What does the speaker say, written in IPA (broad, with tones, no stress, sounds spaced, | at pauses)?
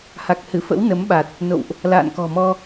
h a˨˩ k̚ h ɨ˧˩ f ə̰˧˥ w n ə˨˦ m ɓ a˨˩ t̚ | n o̰˧˨ w ʔ | l a̰ː˧˨ n k ɔ̤˨˩ m ɔ˧